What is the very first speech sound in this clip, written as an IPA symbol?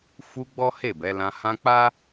f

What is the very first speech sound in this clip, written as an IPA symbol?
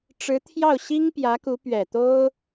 ʈ͡ʂ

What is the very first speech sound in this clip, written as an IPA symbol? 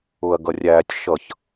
ʊ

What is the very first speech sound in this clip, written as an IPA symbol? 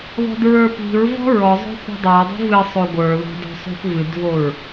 ð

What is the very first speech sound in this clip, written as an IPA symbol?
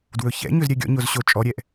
d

